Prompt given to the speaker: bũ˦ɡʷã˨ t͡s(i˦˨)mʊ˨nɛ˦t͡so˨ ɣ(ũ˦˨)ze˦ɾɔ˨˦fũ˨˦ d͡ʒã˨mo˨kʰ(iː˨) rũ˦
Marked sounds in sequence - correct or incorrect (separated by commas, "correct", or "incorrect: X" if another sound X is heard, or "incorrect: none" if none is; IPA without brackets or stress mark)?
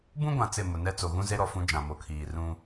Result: incorrect: ɪ˦˨, incorrect: ũ˦, correct